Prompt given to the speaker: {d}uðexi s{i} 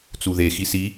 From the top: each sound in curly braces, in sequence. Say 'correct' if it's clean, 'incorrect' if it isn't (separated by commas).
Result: incorrect, correct